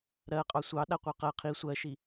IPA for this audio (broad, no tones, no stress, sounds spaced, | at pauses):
ɾ ɜ qʼ ɑ sʷ ɑ ɗ a qʷ ə˞ q ɜ qʰ i sʷ ɜ ʃ i